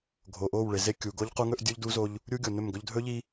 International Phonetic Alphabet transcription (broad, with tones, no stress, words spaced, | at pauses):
ɡʱo˨ʔo˦˨wɭe˨ ze˦kʲu˨ ɡo˦ʎqu˦ŋɵ˦ʔ dʲu˦ʎdu˦zo˦ʎ | ɾʲu˦ɡʲo˨nɵ˦˨mɡɵ˦ʎ dʱɵ˦ʎi˦